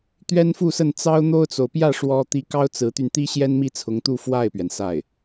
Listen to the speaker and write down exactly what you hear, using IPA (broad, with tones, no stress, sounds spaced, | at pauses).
t̪ ɥ ɛ˥ n f u˥˧ s ə˥˩ n t͡s ɑ˥ ʊ̯ n̪ o˥ ʊ̯ t͡s o˨ ʊ̯ p j ä˥˩ ʂ w ɔ˥ t̪ i˥ k ɑ˥ ʊ̯ t͡s ɹ̩˧˥ t̪ y˧ n t̪ i˥ ɕ j ɛ˥ n m i˥˩ t͡sʰ ʊ˧˥ ŋ t̪ u˥˧ f w a˥˩ ɪ̯ p ɥ ɛ˩ n s a˥˩ ɪ̯